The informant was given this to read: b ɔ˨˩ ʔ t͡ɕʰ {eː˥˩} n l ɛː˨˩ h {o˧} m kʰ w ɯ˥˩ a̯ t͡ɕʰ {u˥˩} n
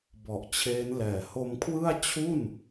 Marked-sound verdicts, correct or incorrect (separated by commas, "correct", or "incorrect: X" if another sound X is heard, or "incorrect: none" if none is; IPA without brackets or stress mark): incorrect: eː˦˥, correct, correct